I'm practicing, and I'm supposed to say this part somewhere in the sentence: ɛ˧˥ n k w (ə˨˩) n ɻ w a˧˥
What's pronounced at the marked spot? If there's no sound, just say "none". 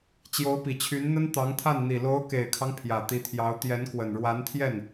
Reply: ə˨˩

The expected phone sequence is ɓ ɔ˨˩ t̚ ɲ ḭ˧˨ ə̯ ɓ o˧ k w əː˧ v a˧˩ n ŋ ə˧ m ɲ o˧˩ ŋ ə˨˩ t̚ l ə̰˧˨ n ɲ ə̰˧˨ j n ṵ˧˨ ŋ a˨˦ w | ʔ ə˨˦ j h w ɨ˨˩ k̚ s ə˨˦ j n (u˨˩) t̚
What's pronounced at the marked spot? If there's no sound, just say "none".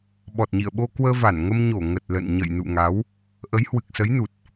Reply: u˨˩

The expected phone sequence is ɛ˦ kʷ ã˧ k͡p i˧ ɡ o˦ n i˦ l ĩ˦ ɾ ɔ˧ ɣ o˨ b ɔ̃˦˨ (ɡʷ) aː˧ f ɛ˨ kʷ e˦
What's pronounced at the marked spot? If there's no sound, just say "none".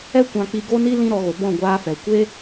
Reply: ɡʷ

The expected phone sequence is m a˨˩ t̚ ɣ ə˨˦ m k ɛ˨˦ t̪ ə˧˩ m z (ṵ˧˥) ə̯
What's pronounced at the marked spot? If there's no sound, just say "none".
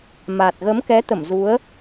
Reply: u˨˦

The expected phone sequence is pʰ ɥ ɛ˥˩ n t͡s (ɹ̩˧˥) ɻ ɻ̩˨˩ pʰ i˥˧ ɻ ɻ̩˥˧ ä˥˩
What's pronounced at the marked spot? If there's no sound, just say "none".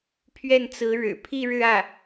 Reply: ɹ̩˧˥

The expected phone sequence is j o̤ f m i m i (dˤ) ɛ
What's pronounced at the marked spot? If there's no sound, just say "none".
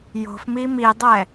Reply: dˤ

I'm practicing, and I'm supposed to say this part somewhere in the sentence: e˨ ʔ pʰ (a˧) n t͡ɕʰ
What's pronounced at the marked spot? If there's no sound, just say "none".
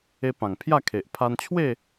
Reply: a˧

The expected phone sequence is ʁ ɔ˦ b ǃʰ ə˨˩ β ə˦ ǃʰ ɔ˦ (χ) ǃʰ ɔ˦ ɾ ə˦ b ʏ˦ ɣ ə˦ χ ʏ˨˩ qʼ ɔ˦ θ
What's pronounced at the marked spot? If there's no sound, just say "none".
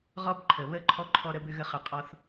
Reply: none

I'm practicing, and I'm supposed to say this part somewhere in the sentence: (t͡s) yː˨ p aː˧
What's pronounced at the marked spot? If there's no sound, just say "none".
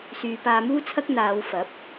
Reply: s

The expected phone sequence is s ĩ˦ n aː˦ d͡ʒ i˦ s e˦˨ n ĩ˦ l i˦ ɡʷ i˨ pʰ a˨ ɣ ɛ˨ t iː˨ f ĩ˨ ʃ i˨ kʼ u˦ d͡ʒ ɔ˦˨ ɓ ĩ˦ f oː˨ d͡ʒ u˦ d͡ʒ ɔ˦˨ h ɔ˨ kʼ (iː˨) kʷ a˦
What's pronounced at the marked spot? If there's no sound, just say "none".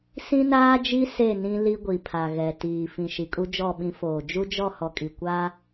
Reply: i˨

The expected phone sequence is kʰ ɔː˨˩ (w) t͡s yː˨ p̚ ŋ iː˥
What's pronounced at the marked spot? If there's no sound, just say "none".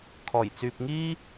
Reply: j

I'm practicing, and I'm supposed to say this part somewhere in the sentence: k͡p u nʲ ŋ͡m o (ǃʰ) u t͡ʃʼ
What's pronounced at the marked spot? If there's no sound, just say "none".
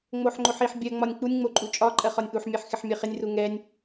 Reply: ǃʼ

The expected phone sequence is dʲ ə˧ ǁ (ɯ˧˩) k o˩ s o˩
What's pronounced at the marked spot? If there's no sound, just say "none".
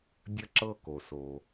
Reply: ɤ˧˩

